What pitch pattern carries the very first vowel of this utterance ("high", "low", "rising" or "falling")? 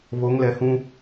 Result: rising